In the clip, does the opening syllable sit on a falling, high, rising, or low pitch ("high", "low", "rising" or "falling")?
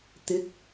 rising